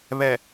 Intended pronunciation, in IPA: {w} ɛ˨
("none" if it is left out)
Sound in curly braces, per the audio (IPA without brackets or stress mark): β